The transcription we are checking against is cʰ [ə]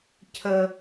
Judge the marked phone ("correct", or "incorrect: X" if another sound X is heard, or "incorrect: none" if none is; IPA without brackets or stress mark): correct